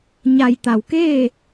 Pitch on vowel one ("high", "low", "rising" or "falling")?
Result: low